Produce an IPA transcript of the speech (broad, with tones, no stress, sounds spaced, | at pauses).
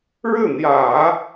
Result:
ɻ ɻ̩˥˩ n̪ j ä˨˩˦